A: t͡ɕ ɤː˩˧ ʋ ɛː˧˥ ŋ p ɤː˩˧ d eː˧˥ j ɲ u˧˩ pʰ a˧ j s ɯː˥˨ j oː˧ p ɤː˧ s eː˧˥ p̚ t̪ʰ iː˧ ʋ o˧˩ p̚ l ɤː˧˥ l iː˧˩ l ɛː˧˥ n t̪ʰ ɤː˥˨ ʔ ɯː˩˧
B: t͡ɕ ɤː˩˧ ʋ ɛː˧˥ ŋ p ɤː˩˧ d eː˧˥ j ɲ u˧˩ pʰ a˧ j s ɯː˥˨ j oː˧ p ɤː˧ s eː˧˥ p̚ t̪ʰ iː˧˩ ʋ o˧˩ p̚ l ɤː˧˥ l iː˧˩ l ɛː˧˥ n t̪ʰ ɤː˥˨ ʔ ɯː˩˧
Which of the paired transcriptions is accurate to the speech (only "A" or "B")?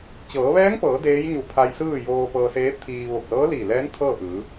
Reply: A